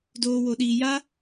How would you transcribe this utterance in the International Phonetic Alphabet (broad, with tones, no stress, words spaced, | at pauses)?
doː˧wo˧ɗiː˧ja˦